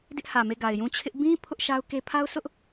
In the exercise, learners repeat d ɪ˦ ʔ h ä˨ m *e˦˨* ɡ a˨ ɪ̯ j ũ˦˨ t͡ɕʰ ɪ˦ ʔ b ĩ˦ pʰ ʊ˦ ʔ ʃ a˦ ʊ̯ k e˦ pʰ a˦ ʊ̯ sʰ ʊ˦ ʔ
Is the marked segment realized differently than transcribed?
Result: no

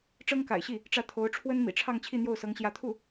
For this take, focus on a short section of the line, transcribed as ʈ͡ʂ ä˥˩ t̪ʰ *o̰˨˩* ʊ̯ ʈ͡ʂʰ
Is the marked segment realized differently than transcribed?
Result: yes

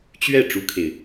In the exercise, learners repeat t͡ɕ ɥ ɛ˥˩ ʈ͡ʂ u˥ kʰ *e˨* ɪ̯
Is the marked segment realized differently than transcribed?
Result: no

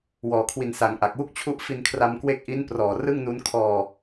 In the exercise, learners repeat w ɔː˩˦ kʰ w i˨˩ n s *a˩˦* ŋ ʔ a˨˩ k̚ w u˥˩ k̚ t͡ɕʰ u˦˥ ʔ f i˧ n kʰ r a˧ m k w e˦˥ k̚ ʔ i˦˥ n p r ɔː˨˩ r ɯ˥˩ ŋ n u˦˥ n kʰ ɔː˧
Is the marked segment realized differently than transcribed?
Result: no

